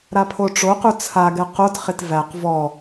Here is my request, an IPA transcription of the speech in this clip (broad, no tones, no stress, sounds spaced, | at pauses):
ɾ a pʰ o ʈ͡ʂ o q u t͡sʰ a ɡ ɛ q o t χ ɪ t v æ q v ɔ